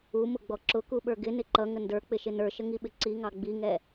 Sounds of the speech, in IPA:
u m ʊ ɡ͡b ɔ ǁ ʊ k u ɓ ə˞ ɡ ɪ n ɪ ǃ ʌ ŋ ə n d ə˞ k͡p ɪ ʃ ɪ n ə˞ ʃ ə ŋ i ɓ ɪ ǀ i ŋ ɑ ɡ͡b i ŋ ɛ

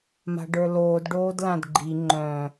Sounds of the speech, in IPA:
m a̤ ɖ ə˞ l oː d ɖ oː d l ã d ɡ͡ǃ i ŋ͡ǃ œ̃

